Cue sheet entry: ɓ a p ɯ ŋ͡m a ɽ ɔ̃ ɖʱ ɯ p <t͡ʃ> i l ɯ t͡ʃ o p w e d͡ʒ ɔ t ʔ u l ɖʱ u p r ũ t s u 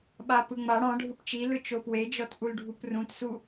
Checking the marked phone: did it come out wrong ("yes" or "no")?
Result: no